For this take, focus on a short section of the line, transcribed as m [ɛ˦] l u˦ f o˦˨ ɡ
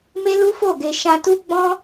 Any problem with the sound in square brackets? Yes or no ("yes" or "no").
yes